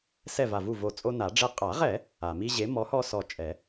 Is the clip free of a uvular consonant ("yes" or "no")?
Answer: no